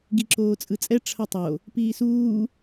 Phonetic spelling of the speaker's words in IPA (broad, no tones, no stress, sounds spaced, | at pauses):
ɡ i ǁ oː t͡sʼ ɯ t͡sʼ ɛ ʈ͡ʂʰ ʌ tˤ o | p iː s uː